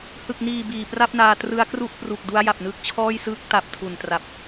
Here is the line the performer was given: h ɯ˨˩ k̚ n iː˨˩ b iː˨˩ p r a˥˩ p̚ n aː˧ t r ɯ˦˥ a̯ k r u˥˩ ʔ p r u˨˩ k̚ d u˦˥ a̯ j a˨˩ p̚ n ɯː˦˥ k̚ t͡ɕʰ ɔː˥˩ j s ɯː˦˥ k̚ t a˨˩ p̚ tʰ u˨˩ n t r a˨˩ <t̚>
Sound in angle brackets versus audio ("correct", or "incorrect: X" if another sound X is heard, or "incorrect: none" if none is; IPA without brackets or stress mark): incorrect: p̚